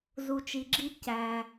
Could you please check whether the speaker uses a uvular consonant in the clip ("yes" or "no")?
no